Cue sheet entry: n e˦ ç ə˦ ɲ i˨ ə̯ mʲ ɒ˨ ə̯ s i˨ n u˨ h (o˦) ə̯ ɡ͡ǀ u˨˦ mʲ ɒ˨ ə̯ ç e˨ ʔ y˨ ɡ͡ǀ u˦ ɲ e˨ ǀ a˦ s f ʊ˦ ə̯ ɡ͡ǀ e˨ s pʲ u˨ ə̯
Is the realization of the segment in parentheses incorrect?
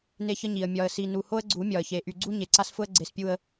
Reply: no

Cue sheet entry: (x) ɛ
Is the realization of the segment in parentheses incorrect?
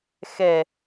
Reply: no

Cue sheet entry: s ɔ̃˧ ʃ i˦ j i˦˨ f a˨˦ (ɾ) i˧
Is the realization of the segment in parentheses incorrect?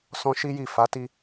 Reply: yes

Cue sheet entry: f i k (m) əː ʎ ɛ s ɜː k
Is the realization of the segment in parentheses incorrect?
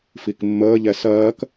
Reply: yes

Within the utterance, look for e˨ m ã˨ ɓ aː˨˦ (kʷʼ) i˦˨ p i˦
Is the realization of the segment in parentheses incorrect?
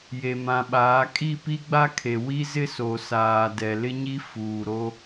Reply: yes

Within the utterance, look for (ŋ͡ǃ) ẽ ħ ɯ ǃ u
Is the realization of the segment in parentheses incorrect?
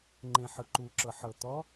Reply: no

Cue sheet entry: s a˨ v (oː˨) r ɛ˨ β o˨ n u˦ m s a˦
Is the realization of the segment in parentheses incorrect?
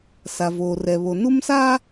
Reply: no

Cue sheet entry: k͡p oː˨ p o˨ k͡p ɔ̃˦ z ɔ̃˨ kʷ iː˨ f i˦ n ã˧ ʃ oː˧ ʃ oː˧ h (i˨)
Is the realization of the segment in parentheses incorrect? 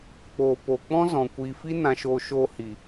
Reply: no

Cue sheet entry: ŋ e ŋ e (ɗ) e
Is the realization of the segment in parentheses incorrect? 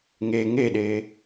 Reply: no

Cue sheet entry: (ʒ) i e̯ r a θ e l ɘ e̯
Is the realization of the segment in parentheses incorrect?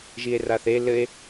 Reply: no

